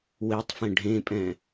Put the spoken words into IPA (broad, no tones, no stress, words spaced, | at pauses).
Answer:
wetˤfẽ ɖʱẽpʼɛ̃